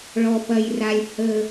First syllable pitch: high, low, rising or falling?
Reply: low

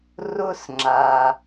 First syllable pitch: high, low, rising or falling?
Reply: high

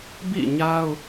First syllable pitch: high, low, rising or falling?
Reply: falling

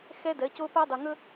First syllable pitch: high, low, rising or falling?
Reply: high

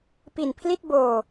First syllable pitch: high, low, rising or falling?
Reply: low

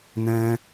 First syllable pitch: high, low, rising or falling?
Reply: high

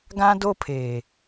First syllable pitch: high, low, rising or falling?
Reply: high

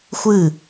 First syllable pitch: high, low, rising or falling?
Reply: falling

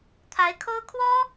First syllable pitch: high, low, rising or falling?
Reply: rising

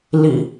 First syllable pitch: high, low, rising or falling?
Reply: low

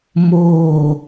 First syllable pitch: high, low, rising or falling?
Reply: falling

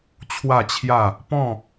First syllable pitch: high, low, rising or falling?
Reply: falling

